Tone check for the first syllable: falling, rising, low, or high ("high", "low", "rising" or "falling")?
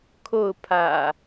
falling